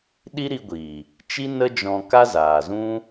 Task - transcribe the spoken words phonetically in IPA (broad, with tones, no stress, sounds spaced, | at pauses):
ɗ i˦ ɾ i˧ ɡʷ iː˨ | t͡ʃ i˦ n ə˦ d͡ʒ ɔ̃˧ k a˦ z aː˨ z ũ˦